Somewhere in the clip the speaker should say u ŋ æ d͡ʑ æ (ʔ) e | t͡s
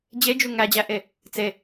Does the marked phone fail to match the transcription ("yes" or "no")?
no